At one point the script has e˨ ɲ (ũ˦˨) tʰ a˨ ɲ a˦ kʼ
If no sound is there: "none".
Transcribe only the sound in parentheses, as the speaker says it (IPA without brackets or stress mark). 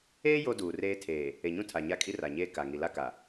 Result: ũ˦